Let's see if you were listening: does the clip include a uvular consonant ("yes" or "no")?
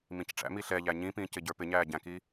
no